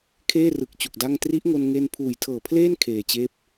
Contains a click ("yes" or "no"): no